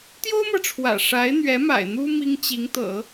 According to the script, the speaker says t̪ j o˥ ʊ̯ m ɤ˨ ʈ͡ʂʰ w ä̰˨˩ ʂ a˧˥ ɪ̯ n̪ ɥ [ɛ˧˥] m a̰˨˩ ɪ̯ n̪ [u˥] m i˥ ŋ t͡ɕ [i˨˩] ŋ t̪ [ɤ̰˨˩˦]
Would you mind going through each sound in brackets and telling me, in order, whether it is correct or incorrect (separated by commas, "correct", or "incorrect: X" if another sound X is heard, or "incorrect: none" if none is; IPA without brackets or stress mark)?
correct, correct, incorrect: i˧˥, correct